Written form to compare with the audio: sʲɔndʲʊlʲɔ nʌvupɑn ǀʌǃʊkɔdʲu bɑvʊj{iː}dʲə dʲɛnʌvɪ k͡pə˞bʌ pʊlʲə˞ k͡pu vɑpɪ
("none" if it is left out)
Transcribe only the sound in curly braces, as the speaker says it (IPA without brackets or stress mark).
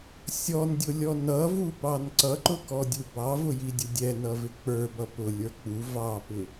i